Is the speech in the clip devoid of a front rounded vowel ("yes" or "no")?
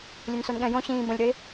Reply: no